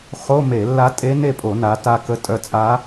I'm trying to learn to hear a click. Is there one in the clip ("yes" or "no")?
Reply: no